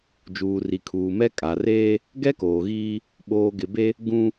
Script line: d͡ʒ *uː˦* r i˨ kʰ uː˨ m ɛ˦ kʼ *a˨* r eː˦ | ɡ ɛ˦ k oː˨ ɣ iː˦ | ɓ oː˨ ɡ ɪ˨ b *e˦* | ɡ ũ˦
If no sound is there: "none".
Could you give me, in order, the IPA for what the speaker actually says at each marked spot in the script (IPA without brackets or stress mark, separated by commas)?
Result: uː˨, a˨, e˦